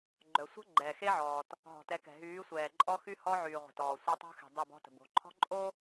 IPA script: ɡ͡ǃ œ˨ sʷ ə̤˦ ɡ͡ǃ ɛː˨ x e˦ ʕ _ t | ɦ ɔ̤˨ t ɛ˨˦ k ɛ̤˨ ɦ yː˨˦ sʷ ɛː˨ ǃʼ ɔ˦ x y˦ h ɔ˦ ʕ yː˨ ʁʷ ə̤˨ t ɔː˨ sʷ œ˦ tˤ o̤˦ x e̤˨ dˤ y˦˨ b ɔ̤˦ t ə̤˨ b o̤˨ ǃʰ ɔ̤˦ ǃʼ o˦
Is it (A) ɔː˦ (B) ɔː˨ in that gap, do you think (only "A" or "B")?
B